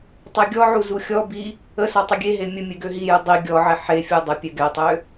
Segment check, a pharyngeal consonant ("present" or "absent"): present